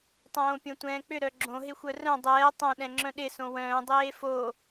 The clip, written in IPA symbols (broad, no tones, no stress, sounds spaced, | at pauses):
tˤ õː pʲ õ tʷ ɛ̃ː k͡p ʏ ɾ œ ɡ͡ǁ õ ɦ ɪ xʷ œ r œ̃ dˤ ɛː tˤ õ ɗ ɛ̃ ŋ͡ǁ œ̃ ɗ ɪ s õ w œ̃ː dˤ eː f o